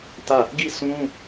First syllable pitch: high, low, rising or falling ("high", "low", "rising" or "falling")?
falling